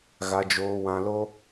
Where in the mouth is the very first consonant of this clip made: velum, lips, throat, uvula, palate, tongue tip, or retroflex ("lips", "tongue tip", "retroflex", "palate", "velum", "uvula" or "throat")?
velum